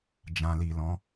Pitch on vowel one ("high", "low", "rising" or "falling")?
low